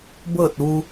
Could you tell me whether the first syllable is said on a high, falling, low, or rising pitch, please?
falling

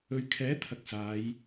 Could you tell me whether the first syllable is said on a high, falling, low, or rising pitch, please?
low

